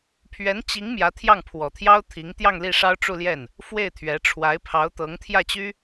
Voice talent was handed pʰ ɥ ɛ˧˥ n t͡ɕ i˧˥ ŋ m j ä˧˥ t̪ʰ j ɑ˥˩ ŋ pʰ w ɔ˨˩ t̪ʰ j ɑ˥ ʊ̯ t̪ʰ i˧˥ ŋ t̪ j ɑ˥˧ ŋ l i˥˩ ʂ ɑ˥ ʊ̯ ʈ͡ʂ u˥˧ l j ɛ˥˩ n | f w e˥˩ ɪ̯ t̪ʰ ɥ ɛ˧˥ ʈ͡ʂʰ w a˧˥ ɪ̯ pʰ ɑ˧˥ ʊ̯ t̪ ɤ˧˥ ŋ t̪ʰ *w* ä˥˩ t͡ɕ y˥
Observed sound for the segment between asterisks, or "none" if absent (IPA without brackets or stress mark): j